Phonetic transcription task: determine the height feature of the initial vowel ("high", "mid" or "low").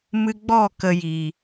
high